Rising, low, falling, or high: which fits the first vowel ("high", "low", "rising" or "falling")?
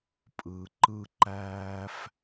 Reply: low